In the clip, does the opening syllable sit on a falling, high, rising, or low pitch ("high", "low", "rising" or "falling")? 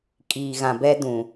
low